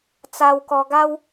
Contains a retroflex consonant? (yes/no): no